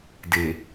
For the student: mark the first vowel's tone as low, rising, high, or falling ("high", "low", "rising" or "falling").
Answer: low